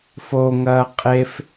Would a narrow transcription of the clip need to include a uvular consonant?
yes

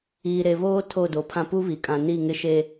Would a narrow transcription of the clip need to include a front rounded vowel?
no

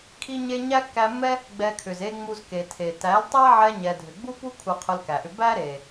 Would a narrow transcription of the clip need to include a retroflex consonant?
no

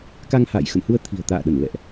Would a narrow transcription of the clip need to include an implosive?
yes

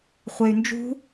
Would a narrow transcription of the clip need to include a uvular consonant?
yes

